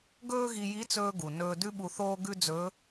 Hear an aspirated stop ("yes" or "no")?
no